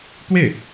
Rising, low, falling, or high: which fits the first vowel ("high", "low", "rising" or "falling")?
falling